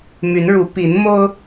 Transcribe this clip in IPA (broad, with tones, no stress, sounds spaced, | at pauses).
m y˨˦ n ɻ u˨˦ p i˨˦ n m o˦ ʊ̯